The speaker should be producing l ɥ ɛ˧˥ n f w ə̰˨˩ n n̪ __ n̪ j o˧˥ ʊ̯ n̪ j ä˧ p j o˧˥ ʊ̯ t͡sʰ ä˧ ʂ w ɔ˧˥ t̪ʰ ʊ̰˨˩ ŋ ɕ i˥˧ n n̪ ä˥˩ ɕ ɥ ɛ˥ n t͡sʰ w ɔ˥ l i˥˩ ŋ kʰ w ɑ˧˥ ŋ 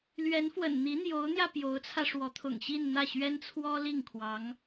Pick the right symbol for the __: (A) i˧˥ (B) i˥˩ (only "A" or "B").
A